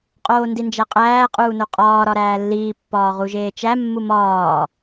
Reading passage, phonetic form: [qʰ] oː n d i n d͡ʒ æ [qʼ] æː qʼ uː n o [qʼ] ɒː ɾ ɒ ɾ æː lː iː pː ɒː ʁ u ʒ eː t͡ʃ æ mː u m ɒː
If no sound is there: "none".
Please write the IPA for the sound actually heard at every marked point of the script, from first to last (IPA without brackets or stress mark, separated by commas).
qʼ, qʼ, qʼ